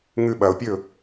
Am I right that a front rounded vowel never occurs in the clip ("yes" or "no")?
yes